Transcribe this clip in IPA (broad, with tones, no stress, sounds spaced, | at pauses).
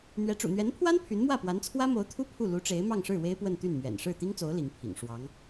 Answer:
n̪ ɥ ɛ˧˥ ʈ͡ʂ ṵ˨˩ n̪ ɥ ɛ˧˥ n pʰ w a˥ n pʰ y˧˥ n m w ä˥˩ p w a˧˥ n t͡sʰ w ä˥ m o˧˥ ʊ̯ t̪ʰ u˥ pʰ u˥˩ l u˧˥ ʈ͡ʂ e˧˥ ɪ̯ m ɑ˥˧ ŋ ʂ ɻ̩˥˩ w e˥ ɪ̯ p w ə˥˧ n t̪ y˥˩ n m ɥ ɛ̰˨˩ n ʂ ɻ̩˥˩ t̪ i˥ ŋ t͡s o˧˥ ʊ̯ l i˧˥ ŋ pʰ ḭ˨˩ ŋ ʂ w ɑ˧˥ ŋ